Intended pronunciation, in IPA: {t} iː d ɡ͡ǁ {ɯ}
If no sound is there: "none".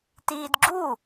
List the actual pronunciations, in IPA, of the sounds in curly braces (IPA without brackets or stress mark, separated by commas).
t, u